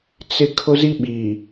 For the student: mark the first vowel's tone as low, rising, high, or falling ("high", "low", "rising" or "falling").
high